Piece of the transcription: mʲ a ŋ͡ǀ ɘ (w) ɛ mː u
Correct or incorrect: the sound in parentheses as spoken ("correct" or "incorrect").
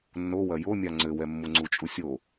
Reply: correct